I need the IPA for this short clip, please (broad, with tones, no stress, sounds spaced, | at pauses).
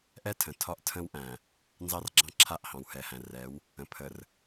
ʔ ɛ˦ tʰ ə̃˨ tʰ ɒ˦ ʔ tʰ ə̃˦ w ʔ æ̃˨ | n z ɑ˦ r ɡ͡ǁ ɑ̃˦ ǁʰ a˦˨ ʔ h ɑ̃˨ w h ɛ˨ h æ̃˨ r ɛ˨˦ w | ə̃˨ pʰ ə˨ r